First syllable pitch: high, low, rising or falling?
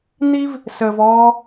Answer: high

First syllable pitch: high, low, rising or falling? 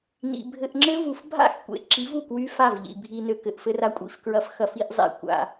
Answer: low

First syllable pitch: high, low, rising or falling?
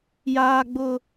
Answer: high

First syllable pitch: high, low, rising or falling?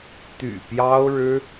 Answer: low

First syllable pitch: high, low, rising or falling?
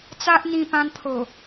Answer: high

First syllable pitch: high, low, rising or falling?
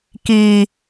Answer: low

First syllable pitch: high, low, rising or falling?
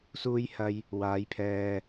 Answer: high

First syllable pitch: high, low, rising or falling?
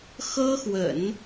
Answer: high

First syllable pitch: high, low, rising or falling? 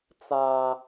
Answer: high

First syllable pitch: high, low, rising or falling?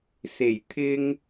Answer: low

